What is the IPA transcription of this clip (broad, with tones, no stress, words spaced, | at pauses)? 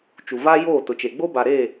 t͡ʃu˨va˦joː˦˨ tʊ˨t͡ʃe˨ ɡ͡bo˦ba˨ɾe˦˨